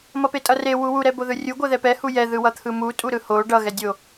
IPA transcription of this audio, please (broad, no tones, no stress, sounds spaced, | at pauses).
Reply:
m ʌ p e tʼ ʌ r e w u w u ɾ ɛ b o ð ɯ rʲ u ɡʷ ɛ ð ɛ p ɛ h u j ɛ ð ɯ w ʌ t̪ʰ ɯ m u tʼ u ɾ ɯ h o ɖ ʌ ɣ ɛ dʲ o